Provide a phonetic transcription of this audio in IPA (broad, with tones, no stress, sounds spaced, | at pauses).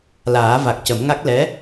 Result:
l aː˨˩˦ v a˨˩ k̚ c ə˨˩˦ m ŋ a˦˥ k̚ l ɛ˧˥